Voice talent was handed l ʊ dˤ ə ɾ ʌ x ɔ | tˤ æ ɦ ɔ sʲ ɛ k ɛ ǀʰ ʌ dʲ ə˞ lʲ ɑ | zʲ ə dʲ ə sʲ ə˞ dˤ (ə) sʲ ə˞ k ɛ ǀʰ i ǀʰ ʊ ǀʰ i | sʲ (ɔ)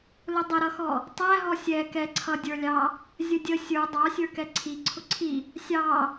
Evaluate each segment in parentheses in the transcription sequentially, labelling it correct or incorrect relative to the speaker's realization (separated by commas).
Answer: incorrect, incorrect